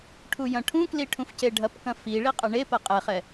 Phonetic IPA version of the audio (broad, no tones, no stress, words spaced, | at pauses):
ʈʰujɐ̃ʈʰũkli ʈʰũfceɖʱɐpkɐ̃ fiɭi qʼɐɳepɐ qʼɛχɛ